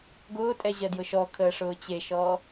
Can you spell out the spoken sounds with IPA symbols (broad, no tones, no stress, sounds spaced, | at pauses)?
ɡ ʊː tʼ ɛ ʑ ɜ d j ʊ ʃ ɔ kʰ əː ʂ ʊː t͡ɕ e ʃ ɔː